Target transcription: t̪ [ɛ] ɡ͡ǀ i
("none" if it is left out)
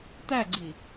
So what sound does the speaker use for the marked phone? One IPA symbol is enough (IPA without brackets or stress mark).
æ